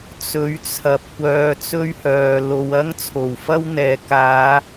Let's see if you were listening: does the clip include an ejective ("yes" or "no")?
no